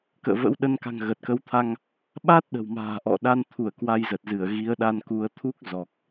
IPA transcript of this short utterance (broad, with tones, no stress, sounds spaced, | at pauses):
k ə̰ː˧˨ v ə̰˧˥ w ɗ ə˧ n k a̤˨˩ ŋ ɣ ə˨˩ t̚ k ə˨˦ w t̪ʰ a˧ ŋ | ɓ a˦˥ t̚ ɗ ə̤˨˩ w m a̤ː˨˩ ʔ ɔ̰˧˨ ɗ a˧ n t̪ʰ u˧˩ ə̯ k w a˧ j z ə˨˩ t̚ z ɨ˧˩ ə̯ ɣ i˨˦ ə̯ ɗ a˧ n k u˨˦ ə̯ t̪ʰ u˦˥ k̚ z ɔ˨˩ k̚